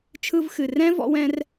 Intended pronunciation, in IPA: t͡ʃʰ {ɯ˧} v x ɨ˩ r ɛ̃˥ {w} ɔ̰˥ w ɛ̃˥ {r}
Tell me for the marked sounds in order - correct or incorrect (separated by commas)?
correct, incorrect, correct